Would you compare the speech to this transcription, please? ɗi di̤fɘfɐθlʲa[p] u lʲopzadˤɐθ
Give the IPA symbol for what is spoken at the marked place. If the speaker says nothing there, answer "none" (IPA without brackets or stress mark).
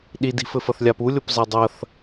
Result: p